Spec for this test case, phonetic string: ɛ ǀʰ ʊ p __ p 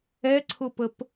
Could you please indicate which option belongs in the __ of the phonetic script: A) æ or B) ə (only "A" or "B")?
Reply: B